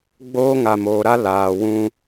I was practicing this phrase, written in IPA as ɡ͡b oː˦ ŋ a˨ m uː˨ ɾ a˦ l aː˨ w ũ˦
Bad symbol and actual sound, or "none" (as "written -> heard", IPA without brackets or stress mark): uː˨ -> oː˨